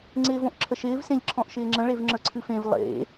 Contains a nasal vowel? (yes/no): yes